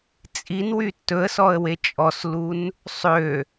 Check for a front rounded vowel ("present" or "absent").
present